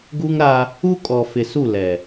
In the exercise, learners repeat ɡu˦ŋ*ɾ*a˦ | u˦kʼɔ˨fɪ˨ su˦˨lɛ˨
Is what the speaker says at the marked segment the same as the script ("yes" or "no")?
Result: yes